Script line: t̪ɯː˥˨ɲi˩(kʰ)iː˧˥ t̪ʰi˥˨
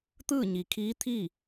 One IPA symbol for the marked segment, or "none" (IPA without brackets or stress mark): kʰ